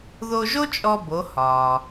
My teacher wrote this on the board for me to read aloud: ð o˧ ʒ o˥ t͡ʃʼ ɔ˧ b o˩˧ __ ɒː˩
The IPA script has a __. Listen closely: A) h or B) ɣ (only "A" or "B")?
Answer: A